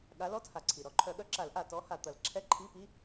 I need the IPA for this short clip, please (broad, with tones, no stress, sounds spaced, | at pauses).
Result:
ɠ a˨˦ l ɔ˧˥˧ t h a˩ ǀʰ i˩ ɾ ɔ˨˩˦ ǃʰ œ˨˩˦ ɠ œ˨˦ ǁ a˨˩˦ l ʔ a˩ t ɔ˨˦ h a˩ t̪ ɐ˨˩˦ l ǁʰ ɛ˧˥˧ ǃʰ i˧˥˧ p i˧˥˧